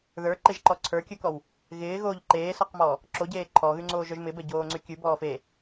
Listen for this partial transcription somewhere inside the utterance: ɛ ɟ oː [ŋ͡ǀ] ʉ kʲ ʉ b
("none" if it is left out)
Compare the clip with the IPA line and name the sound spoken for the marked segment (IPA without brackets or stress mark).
ŋ͡ǀ